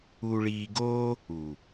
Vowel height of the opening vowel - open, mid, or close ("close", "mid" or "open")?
close